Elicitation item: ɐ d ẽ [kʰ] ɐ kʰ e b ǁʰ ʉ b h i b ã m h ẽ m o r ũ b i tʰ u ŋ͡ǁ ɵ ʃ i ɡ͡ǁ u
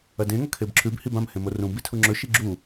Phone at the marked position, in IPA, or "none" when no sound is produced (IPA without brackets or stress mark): ŋ